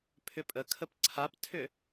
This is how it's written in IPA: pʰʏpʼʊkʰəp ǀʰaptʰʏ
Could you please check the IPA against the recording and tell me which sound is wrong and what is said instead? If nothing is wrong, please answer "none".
ʊ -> ə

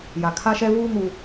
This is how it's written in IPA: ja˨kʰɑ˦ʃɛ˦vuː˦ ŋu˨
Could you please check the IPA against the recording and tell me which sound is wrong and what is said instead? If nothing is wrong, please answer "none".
ɑ˦ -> a˦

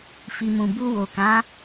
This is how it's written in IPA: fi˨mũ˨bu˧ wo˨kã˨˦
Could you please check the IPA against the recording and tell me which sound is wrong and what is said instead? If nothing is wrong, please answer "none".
none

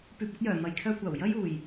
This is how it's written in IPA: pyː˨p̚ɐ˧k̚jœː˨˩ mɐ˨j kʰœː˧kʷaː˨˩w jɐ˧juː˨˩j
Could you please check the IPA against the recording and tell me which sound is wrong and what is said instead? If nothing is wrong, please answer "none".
none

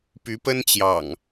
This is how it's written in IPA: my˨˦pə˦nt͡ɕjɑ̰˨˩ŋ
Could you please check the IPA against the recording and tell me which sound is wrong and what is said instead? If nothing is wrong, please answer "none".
m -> p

